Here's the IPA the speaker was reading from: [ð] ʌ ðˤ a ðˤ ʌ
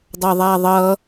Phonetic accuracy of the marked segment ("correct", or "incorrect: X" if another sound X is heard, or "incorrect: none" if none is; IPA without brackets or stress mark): incorrect: dˤ